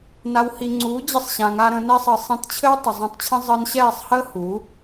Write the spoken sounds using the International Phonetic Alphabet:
na˨whi˨ ŋ͡ǀuː˨˦d͡ʑɘ˧sˤɕã˨ŋa˧ ɾə̃˧nɛ˦sˤə˧ sˤẽ˧tt͡ɕʰɘ˦w tˤə˨zˤẽ˧tˤt͡ɕʰə̃˦ zˤəː˧nɕɛː˦˨sˤhəː˦ hu˨˦

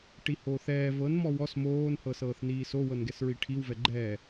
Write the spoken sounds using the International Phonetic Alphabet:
ʈihoːθɛː vɤn mɔwɔs moːn hɤsɤːθniːso wɤnɡɛsɹiʈʰiw vɛɡ͡ǃɛː

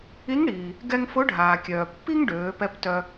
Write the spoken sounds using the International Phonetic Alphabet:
i˧˥ŋɽiː˩ | ɡɛ˧ŋ fʊ˧˥ɖʱaː˩kʲœː˩pːi˥ŋ ɖøː˩˧pɛ˧˥p tœ˧

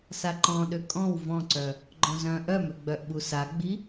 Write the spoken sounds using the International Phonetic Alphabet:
saǃɔ̃ ɗøkʼɔ̃w vɔ̃ǀœ | ɡ͡ǃɔ̃zœ̃ ʔœmøɡ͡bœʔɓu saɡ͡bi

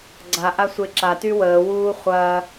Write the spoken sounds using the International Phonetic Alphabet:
ɡ͡ǀaʔasʷe ǁaty wəːwuː χʷɐː

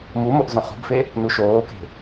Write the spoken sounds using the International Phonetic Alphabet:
mu moʔzõχṳbfe | nuʃoːke̤

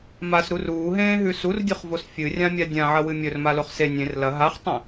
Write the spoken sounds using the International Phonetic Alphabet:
masɾu ruːɦẽːɦʉ surdʲuχvos fʲɨrʲãmʲa dʲãʕɐwɨ mʲɵrmaloχ se nʲẽr lɐ ɦaχtˤẽ

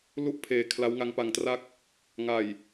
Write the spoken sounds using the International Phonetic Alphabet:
lu˥˩ʔpʰeː˨˩ kʰla˦˥wŋa˦˥ŋpa˧ŋtra˥˩k̚ | ŋa˨˩j

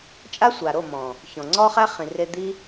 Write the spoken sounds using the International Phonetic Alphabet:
t͡ʃʼa˦sʷa˨ ɾo˦˨ mɔ̃˨ | çɔ̃˨ ŋ͡ǀɔ˦χæ˦χĩ˨re˧ d̪i˦

